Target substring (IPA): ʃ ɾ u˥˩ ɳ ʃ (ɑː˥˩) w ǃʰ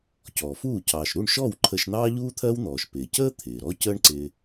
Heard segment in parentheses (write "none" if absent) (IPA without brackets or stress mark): ɔː˥˩